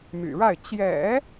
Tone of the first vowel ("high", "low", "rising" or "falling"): low